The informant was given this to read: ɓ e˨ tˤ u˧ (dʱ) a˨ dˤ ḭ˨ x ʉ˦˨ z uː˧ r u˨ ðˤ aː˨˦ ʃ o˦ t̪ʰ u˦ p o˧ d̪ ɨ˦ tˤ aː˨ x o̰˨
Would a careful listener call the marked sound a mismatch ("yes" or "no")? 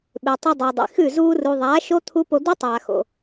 yes